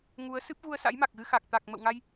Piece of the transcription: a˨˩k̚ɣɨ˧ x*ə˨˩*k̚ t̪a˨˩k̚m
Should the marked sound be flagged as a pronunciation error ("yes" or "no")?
yes